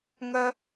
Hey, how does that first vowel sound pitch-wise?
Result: low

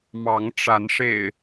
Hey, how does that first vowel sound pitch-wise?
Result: rising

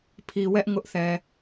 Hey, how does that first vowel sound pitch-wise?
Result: low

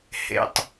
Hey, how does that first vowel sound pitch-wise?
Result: low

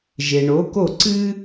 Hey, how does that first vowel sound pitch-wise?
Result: low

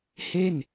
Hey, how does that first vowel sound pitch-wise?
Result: falling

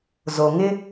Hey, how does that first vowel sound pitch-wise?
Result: low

